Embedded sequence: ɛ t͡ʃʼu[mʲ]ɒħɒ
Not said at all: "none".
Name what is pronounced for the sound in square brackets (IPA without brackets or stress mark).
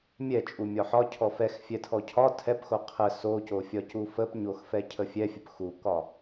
mʲ